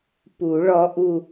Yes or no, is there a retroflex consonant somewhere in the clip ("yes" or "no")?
yes